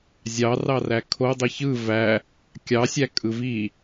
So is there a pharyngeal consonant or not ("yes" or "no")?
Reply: no